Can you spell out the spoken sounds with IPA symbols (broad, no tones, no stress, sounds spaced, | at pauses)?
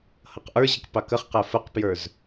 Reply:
h ʌ q ʔ ə˞ ʑ ə k p ɑ k ə χ q æ f ə q p j ə˞ z